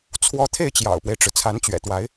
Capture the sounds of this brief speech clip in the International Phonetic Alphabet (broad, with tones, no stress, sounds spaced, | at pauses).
t͡sʰ w ɔ˧˥ t̪ʰ e˥˩ ɪ̯ t͡ɕ j ɑ̰˨˩ ʊ̯ p w e˦ ɪ̯ ʈ͡ʂ ɻ̩˩ t͡sʰ a˧˥ n t͡ɕ ɥ ɛ̰˨˩ t̪ w a˧˥ ɪ̯